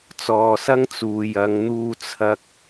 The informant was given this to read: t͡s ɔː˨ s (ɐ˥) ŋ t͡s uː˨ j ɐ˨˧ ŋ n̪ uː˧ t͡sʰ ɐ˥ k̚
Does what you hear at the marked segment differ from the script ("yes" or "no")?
no